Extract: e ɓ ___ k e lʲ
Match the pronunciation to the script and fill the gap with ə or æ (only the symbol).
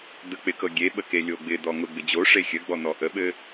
ə